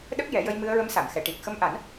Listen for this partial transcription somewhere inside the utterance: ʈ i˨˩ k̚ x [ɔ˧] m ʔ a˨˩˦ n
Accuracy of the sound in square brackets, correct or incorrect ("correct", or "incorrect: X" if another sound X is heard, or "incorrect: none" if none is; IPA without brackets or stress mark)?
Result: incorrect: ə˧